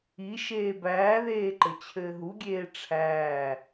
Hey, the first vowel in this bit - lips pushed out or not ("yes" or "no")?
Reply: no